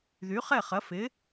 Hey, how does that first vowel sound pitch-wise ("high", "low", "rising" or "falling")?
rising